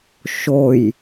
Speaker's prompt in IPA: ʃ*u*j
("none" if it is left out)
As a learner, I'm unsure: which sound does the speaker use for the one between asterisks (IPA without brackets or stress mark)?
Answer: o